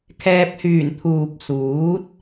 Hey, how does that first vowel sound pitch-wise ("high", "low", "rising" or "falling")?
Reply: low